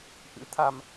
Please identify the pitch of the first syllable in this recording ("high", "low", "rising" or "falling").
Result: rising